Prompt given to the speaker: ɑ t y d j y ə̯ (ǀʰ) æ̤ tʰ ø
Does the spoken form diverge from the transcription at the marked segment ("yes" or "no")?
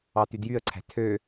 no